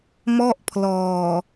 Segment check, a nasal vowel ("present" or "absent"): absent